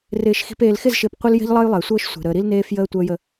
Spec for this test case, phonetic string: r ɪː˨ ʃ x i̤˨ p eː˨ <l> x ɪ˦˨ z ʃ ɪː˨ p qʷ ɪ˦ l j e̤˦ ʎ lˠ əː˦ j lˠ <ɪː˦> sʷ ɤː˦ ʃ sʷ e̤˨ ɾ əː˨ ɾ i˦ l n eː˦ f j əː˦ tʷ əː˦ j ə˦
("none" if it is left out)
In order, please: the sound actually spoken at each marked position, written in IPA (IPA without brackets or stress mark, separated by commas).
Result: l, ɪː˨